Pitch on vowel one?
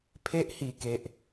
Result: high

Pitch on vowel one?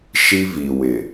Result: high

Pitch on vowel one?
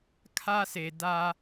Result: high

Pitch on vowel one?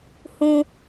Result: high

